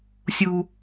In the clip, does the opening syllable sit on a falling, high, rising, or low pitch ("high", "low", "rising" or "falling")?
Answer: high